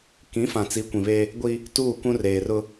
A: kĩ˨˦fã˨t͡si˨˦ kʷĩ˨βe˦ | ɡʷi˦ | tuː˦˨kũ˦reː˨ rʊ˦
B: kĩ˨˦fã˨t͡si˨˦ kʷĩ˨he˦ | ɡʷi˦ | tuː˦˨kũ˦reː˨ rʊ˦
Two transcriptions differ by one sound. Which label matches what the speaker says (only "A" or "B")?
A